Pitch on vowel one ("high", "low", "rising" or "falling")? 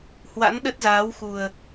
rising